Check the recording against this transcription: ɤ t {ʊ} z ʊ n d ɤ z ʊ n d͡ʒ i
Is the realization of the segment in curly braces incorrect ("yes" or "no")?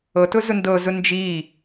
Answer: no